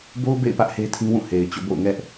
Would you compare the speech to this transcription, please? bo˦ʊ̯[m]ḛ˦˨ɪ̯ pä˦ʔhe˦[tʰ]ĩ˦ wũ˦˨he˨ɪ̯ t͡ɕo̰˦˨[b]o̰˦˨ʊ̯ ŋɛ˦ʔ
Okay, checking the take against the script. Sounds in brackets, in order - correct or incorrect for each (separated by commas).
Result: incorrect, correct, correct